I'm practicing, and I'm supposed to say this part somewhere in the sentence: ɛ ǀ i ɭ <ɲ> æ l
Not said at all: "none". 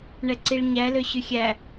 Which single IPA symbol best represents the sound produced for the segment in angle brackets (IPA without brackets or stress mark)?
ɲ